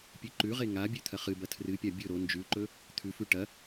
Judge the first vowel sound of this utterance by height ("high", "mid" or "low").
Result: high